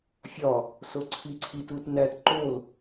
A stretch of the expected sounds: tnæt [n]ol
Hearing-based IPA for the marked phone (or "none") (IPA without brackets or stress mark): ǃ